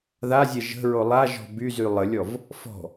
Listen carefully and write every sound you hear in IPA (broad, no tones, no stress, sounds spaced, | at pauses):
ð a zʲ ɛ ʒ ə̤ ɹ o lˠ a ʒ ɔ̤ b y z y lˠ ə lʲ ɔ v | f ɔ̤